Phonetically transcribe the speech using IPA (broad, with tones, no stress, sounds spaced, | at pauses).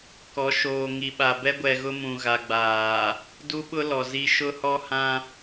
k ɔ˨˦ ʃ oː˨ ŋ i˨ ɓ a˨ b ɛ˦ ɡʷ ɛ˨ ɣ ʊ˦ m ũ˨ ɣ a˨ ɡ͡b aː˨ | d u˦ ɓ ʊ˦ l ɔ˨ z i˦ ʃ ʊ˦ h ɔ˦ h ã˦